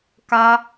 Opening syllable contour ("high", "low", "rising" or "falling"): high